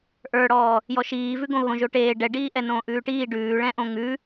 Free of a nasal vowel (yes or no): no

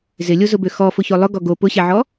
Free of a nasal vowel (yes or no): yes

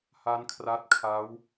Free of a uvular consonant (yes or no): yes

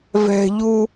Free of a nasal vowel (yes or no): yes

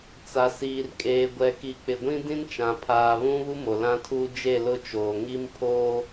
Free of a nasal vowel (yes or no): no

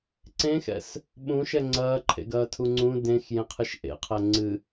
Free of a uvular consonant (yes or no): no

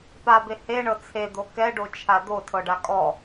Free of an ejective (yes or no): no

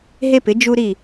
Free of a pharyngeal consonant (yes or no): yes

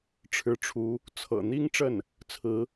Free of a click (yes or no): yes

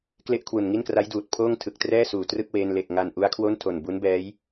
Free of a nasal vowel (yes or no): yes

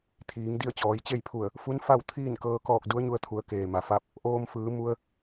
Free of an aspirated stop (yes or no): no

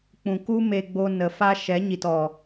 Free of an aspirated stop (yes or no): yes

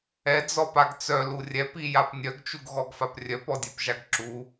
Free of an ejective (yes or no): yes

